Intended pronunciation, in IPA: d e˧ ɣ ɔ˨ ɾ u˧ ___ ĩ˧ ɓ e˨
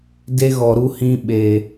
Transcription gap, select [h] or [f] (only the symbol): h